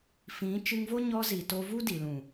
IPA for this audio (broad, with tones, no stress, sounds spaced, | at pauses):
f ĩ˨˦ t͡ʃ ɨ˧ ŋ v o˦ ɲ ɔ˧ z i˨ t o˧ v u˦ d i˨ l ũ˨